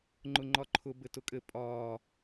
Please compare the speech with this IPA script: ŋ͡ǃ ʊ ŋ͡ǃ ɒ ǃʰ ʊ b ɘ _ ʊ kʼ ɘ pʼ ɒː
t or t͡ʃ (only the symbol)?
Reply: t